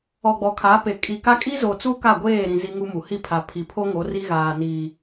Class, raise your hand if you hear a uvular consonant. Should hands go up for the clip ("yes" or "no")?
no